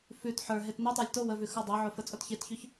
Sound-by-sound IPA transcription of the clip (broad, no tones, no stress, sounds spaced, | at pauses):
f ʉ t ħ ə˞ ɦ e t n e tˤ ə˞ lʲ t o w ə v ʉ x ə˞ dˤ e ʕ o f ə t͡sʼ o t ç e t ç ʉ ç